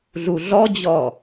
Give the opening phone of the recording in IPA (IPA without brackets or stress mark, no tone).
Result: ɮ